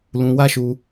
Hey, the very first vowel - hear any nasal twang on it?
yes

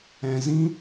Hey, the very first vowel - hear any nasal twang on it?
yes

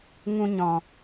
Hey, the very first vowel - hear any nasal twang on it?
yes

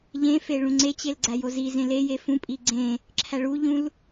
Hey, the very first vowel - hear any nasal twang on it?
yes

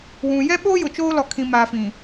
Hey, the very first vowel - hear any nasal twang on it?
yes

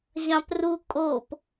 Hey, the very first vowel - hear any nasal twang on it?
yes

